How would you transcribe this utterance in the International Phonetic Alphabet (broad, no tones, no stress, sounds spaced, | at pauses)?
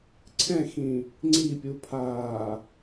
ǀʰ ɛ̃ x ĩ | ŋ͡ǀ i pʲ u pʰ aː